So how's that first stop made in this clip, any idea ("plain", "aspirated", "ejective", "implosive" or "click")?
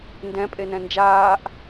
plain